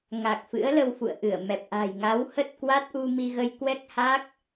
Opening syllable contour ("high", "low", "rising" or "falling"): low